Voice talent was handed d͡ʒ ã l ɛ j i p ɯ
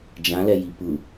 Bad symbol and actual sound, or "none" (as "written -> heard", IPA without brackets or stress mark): none